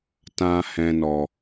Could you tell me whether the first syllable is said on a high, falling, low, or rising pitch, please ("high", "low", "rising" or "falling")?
low